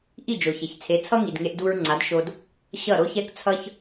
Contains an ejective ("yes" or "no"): no